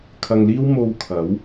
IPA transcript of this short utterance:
kʰ ɐ˨ ŋ l iː˥ w m o˧ w kʰ ɐ˨˥ w

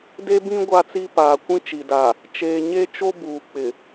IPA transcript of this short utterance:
d e˦ b ĩ˦ ɡʷ a˦ t͡s i˦ p aː˨ kʷ ĩ˦ t͡ʃ i˨ d a˨ | t͡ʃ eː˨ ɲ e˦ t͡ʃ o˦ b uː˨ k͡p ɪ˨

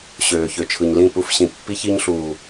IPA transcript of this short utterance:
ɕ øː˨ ç ø˨ t͡ʃʰ ɯ˨ ɲ l ĩ˦˨ p u˦ f ɕ ĩ˨ pː i˦ ç i˦ ɲ ɬ uː˨

